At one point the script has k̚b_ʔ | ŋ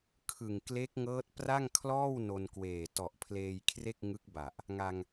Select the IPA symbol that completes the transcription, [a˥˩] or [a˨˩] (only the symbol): a˨˩